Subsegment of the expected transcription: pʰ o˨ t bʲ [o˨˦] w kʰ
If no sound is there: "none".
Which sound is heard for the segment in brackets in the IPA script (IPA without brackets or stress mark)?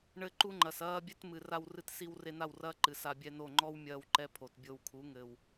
o˧